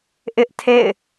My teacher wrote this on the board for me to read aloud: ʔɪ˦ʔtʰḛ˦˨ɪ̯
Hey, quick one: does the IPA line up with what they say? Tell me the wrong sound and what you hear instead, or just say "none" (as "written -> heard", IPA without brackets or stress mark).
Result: none